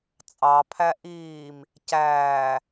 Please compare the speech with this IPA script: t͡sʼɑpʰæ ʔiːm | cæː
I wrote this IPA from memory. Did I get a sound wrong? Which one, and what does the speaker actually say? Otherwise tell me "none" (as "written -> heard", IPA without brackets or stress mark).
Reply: none